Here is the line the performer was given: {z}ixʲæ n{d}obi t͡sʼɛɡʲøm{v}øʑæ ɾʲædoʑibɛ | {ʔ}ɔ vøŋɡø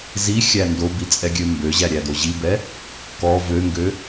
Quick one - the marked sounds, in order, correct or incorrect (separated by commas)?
correct, correct, incorrect, incorrect